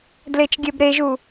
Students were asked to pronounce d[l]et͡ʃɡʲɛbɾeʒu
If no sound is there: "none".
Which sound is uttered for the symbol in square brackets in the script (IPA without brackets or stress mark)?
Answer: l